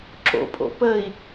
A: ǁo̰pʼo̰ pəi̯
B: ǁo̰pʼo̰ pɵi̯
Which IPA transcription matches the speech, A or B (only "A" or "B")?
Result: A